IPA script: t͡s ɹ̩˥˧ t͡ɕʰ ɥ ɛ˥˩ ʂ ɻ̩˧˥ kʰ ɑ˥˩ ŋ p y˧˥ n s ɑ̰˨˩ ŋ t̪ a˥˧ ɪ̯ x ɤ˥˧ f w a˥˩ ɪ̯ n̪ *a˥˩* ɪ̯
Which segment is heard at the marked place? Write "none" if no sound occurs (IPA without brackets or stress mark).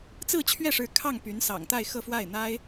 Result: a˥